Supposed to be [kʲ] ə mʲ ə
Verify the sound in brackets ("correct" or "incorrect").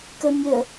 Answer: incorrect